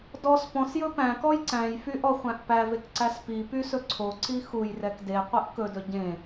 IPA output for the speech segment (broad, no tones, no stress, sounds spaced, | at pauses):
d ɔ s p ɔ̃ s j ɵ p æ̃ k ɔ j ǀ æ̃ j f y ʔ ɔ χʷ æ̃ ʔ p æ v e k ǀ æ s p i p y s ɵ ǀʰ o ǀ i x u j r ɛ k d e qʷ e ʔ k ɵ d ɵ ɟ ẽ